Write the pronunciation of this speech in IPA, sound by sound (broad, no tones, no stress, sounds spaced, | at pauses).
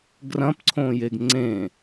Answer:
ɡ r ɐ̃ p ǀʰ õ j e ɡ ŋ͡ǀ ẽ